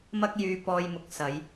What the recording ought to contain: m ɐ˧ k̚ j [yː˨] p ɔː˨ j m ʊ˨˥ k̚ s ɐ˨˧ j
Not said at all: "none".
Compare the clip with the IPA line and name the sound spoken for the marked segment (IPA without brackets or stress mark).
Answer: yː˨